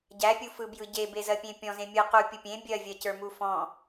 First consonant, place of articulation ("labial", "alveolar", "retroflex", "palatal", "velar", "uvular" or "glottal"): palatal